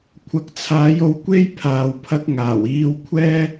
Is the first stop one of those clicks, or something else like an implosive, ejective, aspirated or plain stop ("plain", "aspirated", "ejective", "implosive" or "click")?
aspirated